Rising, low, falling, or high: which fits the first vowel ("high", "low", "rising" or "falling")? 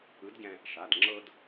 rising